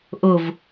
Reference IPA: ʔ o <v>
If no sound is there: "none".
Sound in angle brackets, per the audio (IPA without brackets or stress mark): v